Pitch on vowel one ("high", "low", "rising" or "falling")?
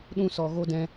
high